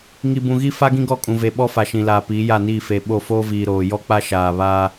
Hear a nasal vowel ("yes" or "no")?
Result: yes